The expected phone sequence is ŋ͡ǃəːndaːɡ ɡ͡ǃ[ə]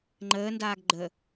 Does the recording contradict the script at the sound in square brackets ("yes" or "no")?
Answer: no